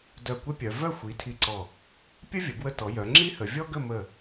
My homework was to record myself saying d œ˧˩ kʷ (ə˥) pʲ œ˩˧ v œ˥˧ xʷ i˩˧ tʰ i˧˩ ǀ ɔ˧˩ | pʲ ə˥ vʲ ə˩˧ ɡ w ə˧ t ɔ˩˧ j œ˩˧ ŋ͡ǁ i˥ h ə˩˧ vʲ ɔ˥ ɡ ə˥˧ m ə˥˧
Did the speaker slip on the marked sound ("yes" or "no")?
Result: no